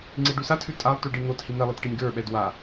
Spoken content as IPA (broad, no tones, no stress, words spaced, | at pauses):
ŋ͡ǀiɖʉsatʰʉ tʼalˠ tʉɖin̪othi n̪ɛlˠɘt ʈinʲɡə˞ɓɛd wa